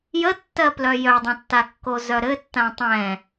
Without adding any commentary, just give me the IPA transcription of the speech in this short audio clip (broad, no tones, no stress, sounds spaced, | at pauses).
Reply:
j ə tː ɜ p l œ j œ dˤ ə̃ tː a kː o z œ ɾ ɘ tː ã tˤ ɛ̃